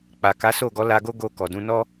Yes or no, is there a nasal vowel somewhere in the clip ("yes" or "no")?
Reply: yes